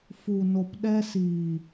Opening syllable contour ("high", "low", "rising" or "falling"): low